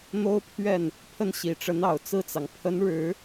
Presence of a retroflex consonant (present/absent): present